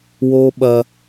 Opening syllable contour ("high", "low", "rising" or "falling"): high